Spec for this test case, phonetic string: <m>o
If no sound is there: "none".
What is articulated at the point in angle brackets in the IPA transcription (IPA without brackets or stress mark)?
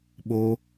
ɓ